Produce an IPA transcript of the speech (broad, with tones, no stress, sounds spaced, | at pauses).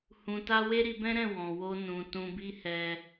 h ũ˧ t a˦ w e˦ ɾ i˧ b ɛ̃˦ ɾ ɛ̃˦˨ w ɔ̃˨ w o˧ n ũ˨ t ũ˧ b i˦ h ɛ˧